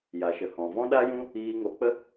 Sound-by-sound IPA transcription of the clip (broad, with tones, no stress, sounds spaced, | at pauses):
j a˨ ʃ ə˨ h ɔ̃˨ v ɔ̃˦ ɗ a˦ j ũ˦ | iː˧ ŋ o˨˦ k͡p ə˦